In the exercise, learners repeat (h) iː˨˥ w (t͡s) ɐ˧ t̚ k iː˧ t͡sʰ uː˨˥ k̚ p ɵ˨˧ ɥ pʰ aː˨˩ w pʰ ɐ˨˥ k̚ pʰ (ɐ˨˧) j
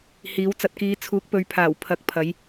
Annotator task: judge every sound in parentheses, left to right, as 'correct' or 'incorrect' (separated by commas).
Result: correct, correct, correct